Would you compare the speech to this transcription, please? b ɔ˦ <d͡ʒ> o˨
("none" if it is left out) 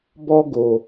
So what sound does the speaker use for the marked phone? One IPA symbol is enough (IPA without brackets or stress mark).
ɡ